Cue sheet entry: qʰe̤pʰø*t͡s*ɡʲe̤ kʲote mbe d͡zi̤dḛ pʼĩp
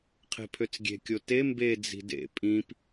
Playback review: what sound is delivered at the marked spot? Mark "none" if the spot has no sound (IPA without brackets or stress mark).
t͡s